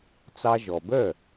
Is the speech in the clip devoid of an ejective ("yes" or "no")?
yes